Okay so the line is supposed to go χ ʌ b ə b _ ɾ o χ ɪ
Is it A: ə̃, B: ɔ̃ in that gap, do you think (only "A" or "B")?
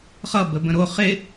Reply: A